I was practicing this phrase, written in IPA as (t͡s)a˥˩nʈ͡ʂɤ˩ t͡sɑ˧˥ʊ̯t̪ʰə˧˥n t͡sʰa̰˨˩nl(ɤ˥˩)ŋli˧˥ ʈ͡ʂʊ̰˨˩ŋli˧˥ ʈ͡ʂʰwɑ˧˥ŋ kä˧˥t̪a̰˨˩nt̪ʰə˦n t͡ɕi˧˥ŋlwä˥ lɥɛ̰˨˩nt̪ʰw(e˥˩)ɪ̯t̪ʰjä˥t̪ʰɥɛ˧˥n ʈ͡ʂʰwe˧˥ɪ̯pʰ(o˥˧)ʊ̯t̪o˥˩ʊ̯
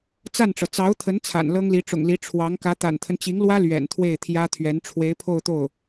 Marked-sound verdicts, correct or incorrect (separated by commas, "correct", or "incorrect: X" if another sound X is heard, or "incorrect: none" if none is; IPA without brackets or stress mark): correct, incorrect: ɤ˥, correct, correct